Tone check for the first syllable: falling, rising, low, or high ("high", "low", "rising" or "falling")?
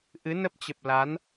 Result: rising